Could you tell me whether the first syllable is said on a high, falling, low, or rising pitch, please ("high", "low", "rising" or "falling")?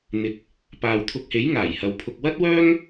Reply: low